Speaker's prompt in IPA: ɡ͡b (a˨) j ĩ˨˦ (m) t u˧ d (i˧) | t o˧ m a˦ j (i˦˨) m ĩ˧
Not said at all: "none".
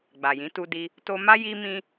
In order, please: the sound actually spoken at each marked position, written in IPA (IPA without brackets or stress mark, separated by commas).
a˨, none, i˧, i˧